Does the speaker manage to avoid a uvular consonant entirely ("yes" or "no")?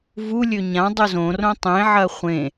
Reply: no